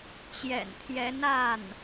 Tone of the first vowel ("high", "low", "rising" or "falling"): low